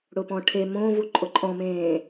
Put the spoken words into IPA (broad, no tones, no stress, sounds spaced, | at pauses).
ɽ ʊ p ɔ̃ ʈʰ e m õ v u ǃʼ ʊ ǃʼ ɔ̃ m ẽː